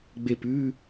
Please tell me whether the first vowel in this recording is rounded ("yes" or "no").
no